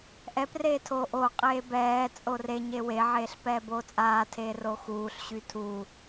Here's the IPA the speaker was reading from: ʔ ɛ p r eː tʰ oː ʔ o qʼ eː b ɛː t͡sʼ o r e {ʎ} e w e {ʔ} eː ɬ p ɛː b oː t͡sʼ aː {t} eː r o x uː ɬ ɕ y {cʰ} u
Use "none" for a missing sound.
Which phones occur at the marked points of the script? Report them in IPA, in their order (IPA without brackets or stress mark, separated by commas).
ɲ, ʕ, tʰ, tʰ